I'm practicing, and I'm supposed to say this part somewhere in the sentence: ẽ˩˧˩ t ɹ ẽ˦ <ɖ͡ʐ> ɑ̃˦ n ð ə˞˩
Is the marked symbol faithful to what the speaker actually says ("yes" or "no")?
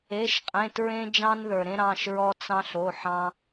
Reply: no